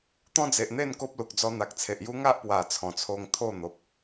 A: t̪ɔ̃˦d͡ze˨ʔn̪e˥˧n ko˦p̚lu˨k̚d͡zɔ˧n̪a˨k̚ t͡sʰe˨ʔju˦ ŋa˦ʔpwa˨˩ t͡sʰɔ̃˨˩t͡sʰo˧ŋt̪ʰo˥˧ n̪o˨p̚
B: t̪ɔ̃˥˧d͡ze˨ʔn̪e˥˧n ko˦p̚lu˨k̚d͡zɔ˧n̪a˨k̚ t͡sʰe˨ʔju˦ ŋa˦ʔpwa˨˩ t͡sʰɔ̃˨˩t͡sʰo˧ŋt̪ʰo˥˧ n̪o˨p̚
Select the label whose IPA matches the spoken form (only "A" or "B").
A